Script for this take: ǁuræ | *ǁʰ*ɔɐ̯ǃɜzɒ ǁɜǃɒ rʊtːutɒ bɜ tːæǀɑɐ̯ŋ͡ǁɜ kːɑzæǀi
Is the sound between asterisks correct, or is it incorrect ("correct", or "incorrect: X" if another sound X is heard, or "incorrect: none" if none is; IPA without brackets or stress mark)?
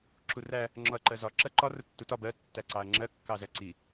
incorrect: ŋ͡ǁ